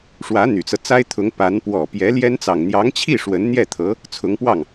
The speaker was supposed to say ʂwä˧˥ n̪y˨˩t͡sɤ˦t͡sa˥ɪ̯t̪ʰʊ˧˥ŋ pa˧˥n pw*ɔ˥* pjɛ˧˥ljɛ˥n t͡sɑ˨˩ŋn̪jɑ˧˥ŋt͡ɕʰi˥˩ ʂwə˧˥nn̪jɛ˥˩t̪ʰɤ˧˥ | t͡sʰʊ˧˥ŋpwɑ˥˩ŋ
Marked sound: incorrect: ɔ˨˩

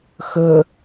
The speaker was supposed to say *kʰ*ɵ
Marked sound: incorrect: x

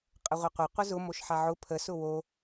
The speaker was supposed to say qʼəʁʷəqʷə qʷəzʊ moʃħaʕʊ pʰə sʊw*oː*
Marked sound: incorrect: o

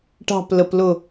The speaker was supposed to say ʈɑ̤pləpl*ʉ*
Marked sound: incorrect: ʊ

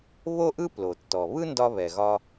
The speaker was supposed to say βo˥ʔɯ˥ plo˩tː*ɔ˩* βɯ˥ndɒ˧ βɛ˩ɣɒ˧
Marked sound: correct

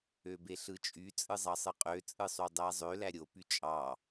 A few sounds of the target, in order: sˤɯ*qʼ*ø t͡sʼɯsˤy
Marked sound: correct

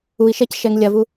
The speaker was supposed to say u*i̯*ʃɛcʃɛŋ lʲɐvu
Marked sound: correct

